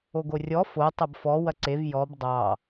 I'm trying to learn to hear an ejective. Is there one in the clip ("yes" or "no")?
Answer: no